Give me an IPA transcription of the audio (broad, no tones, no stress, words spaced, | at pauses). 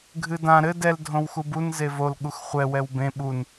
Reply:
ɡʱɨdã ɾɘ dɛl dʱõwxubun zevol ɠuxχʷɛ wɛwbẽ ɓun